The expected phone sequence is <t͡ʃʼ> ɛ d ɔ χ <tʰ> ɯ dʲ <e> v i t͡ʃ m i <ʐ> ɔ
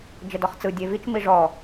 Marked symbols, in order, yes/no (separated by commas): no, no, yes, yes